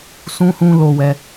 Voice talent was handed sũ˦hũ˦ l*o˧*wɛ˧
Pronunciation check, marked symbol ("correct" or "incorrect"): correct